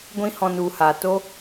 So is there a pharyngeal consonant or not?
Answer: no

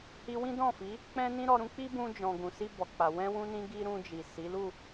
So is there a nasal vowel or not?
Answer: yes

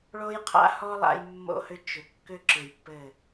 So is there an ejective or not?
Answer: no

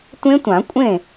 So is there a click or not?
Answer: no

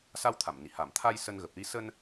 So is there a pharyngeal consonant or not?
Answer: no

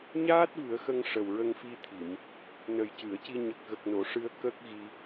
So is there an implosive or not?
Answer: no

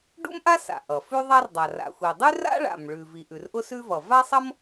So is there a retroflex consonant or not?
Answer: yes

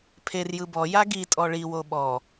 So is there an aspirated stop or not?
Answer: yes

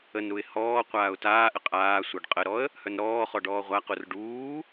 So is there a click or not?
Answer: no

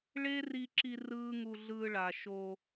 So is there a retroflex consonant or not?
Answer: yes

